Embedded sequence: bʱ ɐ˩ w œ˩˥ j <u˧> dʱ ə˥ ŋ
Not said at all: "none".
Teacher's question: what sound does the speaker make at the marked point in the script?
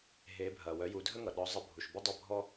u˩˥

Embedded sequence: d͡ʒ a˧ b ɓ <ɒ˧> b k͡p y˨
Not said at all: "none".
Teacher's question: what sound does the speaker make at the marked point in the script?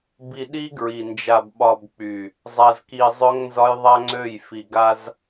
ɒ˧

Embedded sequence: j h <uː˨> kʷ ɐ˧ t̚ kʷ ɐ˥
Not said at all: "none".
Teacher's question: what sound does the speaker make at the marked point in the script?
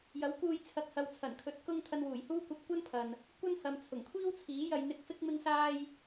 uː˥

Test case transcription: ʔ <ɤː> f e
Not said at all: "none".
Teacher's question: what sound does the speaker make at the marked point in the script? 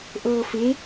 ɤː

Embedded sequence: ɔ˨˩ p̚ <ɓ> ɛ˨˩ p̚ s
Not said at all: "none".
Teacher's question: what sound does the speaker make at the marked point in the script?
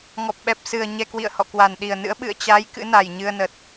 ɓ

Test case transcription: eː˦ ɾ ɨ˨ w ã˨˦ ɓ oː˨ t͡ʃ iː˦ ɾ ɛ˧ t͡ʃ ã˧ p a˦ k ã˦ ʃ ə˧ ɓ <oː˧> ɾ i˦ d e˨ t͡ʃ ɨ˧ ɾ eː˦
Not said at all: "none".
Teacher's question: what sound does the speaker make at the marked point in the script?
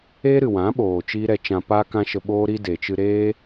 oː˦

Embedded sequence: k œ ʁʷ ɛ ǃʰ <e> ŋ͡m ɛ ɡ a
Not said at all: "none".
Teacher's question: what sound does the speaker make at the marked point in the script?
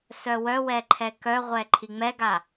i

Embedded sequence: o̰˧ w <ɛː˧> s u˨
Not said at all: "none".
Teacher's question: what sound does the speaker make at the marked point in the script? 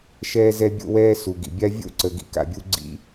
ɛː˧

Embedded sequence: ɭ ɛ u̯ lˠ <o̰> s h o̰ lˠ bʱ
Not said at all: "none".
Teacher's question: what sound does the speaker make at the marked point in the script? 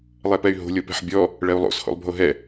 o̰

